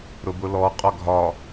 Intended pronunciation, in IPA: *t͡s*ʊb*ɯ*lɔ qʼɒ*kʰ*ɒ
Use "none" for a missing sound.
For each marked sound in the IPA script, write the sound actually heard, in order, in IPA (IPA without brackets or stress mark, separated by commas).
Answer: ɾ, ʊ, ɡʱ